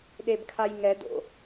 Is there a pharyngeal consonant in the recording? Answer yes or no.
no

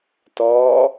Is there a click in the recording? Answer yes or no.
no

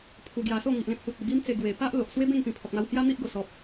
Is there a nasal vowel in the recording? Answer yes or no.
yes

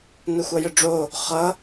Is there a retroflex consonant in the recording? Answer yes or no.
yes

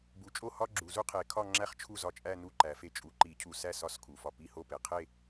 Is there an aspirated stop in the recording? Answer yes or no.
yes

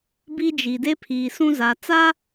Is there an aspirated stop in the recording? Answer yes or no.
yes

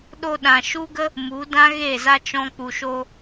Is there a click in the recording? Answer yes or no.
no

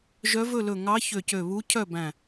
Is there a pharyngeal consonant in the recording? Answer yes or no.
no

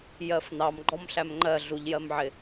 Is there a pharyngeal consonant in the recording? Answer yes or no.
yes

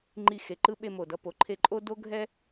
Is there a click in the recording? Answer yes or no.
yes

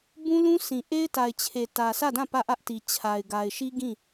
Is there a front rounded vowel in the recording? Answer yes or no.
no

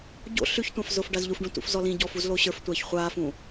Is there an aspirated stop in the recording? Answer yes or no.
no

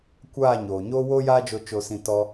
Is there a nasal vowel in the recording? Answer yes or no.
yes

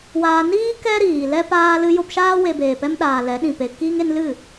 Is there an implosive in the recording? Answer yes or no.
yes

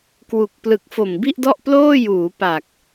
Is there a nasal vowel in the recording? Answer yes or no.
no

